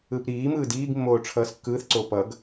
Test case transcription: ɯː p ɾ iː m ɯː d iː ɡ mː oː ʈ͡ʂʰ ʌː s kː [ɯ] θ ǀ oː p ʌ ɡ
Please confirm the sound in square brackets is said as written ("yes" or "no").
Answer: no